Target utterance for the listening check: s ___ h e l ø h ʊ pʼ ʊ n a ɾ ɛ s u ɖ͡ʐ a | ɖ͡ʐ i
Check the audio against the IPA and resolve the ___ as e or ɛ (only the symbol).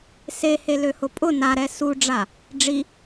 e